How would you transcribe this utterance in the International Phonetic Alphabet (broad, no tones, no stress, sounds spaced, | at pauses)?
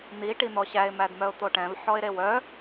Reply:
n̪ i ʈ i n̪ ɔ ɕ æ ɪ̯ m æ d m œ ʊ̯ t̪ o ʈ ɛ̃ v ħ ɔ ɪ̯ ɾ e w œ